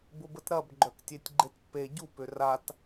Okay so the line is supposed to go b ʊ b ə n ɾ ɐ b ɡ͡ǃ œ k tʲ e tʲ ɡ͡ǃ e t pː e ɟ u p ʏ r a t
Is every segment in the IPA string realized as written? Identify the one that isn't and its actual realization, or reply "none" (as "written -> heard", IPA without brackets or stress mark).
n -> t